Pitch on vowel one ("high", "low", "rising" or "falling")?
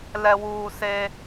low